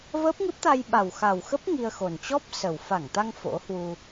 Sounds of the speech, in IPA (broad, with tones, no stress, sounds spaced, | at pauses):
v əː˦˥ p̚ ŋ ɨ˦˥ p̚ t̪ a˧ j ɓ a˨˩ w x a˨˩ w x ə˦˥ p̚ ŋ i˧ ə̯ x o˨˩ n t͡ɕ ɔ˦˥ p̚ s ə˨˩ w f a˧˩ ŋ t̪ a˧ ŋ f o̰˧˥ h w u˧